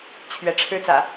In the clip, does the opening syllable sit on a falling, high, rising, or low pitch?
rising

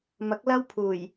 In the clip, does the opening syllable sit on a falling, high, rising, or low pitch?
rising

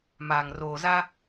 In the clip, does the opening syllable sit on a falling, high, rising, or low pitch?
low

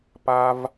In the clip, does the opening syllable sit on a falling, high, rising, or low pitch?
low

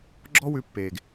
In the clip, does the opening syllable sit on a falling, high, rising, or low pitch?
high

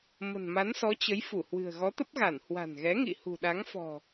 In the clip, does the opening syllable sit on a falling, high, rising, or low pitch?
low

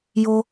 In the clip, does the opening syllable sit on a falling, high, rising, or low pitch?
high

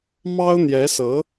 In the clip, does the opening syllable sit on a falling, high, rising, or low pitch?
high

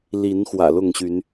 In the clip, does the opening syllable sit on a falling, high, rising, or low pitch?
rising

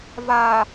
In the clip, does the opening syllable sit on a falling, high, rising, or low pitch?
low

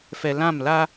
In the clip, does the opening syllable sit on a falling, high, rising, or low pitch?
low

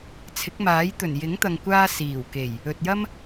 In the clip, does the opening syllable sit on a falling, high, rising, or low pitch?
rising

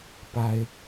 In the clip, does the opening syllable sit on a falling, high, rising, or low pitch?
high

